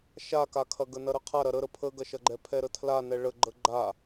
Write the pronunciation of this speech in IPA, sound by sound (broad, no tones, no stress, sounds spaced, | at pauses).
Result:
ʃ a k a kʰ ɐ ɡ ə n ɐ ɾ ə qʰ a ɾ ɐ ɾ ə ɾ ə pʰ ə ɡ ɐ ʃ ɐ ɡ͡ǃ ɛ pʰ ɛ ɾ ə tʰ l a n ɛ ɭ ə ɡ͡ǃ ə ɡ͡ǃ a